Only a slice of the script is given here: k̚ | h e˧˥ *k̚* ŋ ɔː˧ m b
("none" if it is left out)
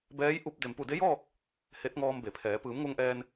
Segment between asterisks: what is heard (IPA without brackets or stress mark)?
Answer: t̚